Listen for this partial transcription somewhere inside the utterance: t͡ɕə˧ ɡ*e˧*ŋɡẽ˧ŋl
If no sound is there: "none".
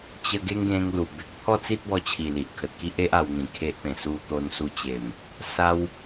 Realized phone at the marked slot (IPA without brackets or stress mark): e˦